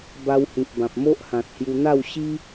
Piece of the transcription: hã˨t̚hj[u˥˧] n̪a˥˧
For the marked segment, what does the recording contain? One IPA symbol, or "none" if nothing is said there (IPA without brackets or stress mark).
u˧